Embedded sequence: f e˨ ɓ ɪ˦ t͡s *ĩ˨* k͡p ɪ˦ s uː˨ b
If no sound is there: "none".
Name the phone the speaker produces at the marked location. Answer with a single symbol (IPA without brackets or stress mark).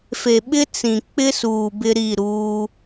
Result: ĩ˨